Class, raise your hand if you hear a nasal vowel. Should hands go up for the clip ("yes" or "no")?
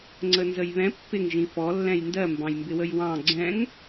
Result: yes